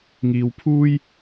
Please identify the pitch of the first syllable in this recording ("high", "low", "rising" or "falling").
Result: low